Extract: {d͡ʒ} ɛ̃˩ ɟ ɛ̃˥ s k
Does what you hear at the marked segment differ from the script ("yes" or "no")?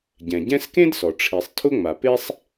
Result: yes